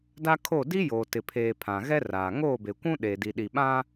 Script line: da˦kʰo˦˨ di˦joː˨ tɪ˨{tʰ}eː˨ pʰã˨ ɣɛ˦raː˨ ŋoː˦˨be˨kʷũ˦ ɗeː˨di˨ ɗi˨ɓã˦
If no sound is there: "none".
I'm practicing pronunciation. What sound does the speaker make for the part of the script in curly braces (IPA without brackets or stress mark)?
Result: pʰ